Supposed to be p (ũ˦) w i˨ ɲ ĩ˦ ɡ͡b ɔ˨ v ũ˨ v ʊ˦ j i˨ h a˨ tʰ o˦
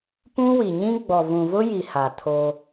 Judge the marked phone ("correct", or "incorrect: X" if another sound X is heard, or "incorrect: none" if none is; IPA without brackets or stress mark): correct